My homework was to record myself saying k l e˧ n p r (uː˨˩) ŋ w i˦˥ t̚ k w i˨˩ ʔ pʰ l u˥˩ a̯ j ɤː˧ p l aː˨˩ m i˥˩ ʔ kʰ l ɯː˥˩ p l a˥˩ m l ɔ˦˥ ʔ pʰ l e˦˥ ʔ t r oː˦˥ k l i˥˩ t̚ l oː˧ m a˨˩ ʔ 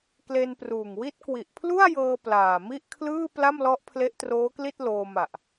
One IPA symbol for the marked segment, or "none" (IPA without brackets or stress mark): uː˨˩